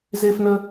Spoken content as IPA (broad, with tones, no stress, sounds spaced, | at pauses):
z e˥ f n ə˥